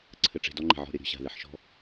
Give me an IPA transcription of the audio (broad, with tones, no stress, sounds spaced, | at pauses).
ǀʰ ɘ˧ ʈ͡ʂ e̤˧ d ɔ˦ ŋ͡ǃ e̤˨ ʕ ɔ̤˦˨ ɾʲ ɐ˦ ɾʲ ɔ̤˧ ɕ a̤˨ ð e˧ ħ ʃ ɔ̤˦